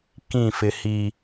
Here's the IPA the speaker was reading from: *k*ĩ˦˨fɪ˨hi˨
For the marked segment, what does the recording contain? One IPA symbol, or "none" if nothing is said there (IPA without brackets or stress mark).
k